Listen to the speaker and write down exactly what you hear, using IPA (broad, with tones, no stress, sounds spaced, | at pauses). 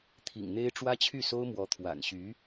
t̪ʰ ḭ˨˩ ŋ n̪ e˥ ɪ̯ ʈ͡ʂ w ä˥ t͡ɕʰ y˥˩ s o˥ ʊ̯ m w ɔ˧˥ t̪ʰ w a̰˨˩ n ɕ y˧˥